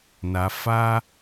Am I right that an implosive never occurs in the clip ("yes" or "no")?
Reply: yes